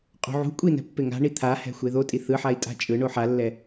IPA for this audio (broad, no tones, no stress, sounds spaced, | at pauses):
qʼ ṳ ʕ ṳ kʷʼ i n ɛ̤ pː e ŋ a̤ ɳ i t̪ʰ a h ɛ̤ xʷ e ð o tʼ i θ ɯ ħ a i̯ tʼ a̤ t͡ʃʼ ɯ ɳ o ħ a lː ɛ